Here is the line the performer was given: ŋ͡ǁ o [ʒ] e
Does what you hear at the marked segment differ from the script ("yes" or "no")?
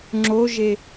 no